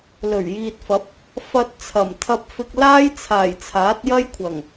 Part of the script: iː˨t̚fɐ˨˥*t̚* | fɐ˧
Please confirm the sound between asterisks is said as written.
no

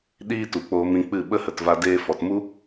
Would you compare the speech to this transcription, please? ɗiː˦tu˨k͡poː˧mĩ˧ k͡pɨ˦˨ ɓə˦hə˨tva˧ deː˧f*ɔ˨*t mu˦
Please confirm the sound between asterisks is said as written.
yes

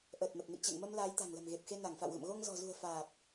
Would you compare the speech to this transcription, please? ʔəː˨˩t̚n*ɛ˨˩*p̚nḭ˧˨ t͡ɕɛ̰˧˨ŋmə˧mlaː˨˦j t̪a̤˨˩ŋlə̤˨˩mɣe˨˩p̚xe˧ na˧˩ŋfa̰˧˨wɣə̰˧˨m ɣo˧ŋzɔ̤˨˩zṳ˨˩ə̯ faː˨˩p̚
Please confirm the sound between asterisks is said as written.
no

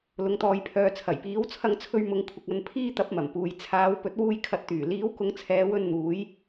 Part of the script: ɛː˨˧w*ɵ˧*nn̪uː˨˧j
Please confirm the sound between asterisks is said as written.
yes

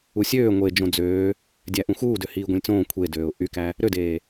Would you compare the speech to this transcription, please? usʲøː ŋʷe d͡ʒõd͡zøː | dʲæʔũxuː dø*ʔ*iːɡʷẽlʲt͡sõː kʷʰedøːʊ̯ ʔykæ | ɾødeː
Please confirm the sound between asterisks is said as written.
no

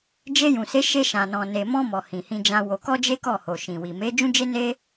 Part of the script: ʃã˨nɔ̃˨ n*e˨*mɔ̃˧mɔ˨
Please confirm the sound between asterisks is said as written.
yes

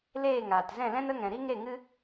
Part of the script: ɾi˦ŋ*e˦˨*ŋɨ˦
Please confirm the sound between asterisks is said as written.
yes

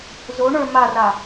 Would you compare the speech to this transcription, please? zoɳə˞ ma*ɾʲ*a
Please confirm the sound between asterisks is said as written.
no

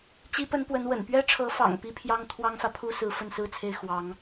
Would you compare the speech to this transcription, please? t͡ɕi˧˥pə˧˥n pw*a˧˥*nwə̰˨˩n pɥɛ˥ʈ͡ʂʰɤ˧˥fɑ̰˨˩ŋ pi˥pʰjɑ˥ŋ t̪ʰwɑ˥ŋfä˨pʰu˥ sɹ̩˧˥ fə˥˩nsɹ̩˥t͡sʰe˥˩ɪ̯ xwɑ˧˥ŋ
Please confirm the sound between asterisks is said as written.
no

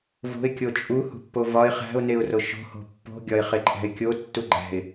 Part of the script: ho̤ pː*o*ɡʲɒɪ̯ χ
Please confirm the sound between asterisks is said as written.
no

